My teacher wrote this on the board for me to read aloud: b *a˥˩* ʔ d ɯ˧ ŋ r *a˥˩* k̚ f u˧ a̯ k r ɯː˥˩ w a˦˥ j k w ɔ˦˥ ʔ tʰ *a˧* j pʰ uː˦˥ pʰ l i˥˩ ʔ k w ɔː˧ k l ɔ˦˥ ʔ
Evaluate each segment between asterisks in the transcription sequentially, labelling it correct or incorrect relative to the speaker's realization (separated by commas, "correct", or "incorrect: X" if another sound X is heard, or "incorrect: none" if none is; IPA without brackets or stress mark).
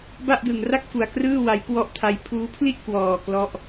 correct, correct, incorrect: a˦˥